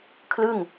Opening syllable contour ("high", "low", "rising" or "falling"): falling